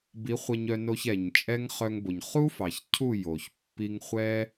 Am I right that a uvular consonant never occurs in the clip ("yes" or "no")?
no